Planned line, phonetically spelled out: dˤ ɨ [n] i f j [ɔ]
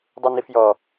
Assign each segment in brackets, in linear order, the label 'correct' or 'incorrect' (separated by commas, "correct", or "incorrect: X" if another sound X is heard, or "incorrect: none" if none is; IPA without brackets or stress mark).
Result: correct, correct